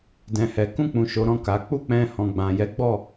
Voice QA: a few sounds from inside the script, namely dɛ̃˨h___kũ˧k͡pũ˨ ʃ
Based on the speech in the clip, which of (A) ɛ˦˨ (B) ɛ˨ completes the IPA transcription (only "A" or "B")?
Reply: B